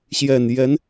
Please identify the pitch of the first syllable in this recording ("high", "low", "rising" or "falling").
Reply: low